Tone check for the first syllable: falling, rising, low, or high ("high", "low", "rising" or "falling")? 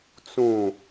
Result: low